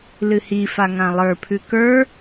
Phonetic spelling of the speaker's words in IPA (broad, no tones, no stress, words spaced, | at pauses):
lɨhifa ŋãlˠə˞pʰʉ kə˞